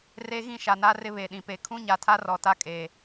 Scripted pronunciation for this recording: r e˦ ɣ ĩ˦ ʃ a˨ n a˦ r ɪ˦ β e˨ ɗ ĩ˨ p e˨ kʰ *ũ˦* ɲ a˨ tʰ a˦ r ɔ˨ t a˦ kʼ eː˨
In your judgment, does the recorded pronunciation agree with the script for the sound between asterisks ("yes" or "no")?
yes